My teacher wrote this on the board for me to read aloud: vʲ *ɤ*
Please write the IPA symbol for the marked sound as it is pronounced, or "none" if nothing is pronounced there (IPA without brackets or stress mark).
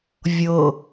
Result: ɤ